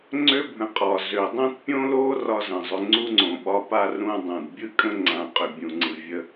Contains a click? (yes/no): yes